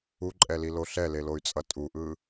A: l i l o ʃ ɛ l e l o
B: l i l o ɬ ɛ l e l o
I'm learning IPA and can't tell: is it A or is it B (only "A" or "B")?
B